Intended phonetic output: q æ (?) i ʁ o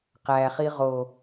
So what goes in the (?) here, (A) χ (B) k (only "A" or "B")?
A